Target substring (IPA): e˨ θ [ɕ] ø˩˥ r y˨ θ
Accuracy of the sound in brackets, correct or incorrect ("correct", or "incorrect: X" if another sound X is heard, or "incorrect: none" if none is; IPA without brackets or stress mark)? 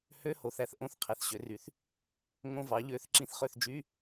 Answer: correct